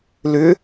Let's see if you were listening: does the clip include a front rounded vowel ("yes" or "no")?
yes